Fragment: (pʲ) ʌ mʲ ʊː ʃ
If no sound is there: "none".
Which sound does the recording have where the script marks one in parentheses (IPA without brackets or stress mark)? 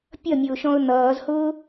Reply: pʲ